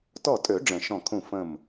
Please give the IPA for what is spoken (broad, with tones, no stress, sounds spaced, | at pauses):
t ɔ˧˩ tʼ ø˨˩˦ ɖ͡ʐ ə̃˨˩˦ ʃ ɔ̃˧˩ kʰ ũ˧˩ f ə̃˧˩ m